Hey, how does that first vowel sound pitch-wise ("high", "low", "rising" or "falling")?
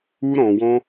high